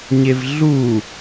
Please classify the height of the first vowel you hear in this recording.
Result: mid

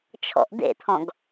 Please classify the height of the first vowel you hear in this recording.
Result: mid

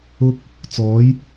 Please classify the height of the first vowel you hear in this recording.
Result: high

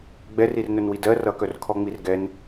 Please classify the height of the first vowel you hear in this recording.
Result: mid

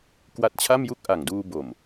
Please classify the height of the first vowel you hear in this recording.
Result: low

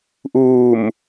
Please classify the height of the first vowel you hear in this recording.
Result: high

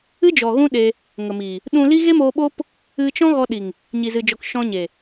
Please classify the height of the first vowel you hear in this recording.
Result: high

